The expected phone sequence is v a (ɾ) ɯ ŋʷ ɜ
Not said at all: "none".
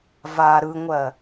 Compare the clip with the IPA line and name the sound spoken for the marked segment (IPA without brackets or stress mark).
ɾ